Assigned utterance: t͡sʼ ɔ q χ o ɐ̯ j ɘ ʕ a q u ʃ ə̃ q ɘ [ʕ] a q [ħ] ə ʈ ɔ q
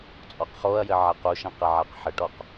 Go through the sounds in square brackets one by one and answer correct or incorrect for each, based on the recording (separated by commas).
correct, correct